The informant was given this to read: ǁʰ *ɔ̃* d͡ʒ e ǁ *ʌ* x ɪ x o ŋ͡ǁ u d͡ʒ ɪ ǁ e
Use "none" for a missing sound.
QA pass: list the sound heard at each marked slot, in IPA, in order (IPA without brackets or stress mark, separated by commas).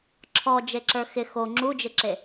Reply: ɔ, ə˞